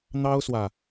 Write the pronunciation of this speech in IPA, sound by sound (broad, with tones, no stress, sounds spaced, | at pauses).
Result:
n̪ ɑ˥ ʊ̯ s w ä˨